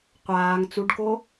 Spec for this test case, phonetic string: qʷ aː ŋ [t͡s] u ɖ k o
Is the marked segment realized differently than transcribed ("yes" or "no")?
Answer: no